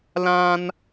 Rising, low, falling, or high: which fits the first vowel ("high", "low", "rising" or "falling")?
high